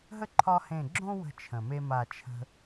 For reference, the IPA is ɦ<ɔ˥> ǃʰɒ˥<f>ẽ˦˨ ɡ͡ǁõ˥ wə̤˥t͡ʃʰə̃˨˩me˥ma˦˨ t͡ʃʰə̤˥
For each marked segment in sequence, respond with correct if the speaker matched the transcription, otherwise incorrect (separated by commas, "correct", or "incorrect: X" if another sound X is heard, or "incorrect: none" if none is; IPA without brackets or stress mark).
incorrect: ə˥, incorrect: h